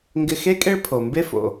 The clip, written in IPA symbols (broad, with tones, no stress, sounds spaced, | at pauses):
ŋ ɡ ɪ˧ x e˥ kʼ e˥ ɭ pʰ o˩ m b e˥ f o̰˩